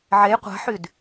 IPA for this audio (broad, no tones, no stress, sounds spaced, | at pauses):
ʕ e j qʷ a̤ ħ y d